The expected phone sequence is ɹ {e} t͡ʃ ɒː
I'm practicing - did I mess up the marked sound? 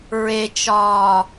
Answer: no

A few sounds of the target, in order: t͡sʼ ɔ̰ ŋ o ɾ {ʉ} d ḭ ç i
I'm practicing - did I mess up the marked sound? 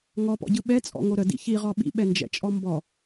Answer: yes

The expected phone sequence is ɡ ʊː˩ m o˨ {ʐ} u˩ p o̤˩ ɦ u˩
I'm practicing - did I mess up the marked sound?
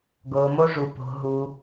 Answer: no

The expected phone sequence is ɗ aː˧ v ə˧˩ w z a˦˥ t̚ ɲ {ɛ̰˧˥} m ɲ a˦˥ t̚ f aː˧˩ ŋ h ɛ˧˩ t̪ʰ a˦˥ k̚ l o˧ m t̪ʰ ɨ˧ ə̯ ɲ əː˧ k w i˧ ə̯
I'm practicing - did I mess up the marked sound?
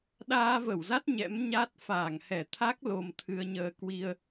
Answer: no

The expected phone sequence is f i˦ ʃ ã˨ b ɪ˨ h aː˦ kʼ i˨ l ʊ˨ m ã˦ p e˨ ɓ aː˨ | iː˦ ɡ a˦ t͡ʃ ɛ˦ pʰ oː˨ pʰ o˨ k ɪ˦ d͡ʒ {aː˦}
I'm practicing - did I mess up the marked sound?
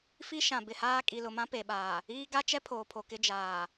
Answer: yes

